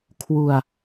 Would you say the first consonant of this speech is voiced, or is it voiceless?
voiceless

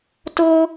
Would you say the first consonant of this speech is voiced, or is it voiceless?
voiceless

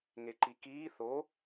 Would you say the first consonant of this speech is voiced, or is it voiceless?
voiced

